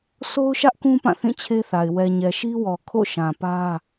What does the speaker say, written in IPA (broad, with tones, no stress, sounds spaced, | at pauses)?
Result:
s o˦ ʊ̯ ʃ ä˦ ʔ k ũ˦ p ã˦˨ θ ĩ˦˨ t͡ɕʰ e˦ θ a˨ ɪ̯ w ɛ˨ ɲ ɛ˨ ʃ i˦ w ɔ˨ kʰ o̰˦˨ ʃ ã˨ p ä˦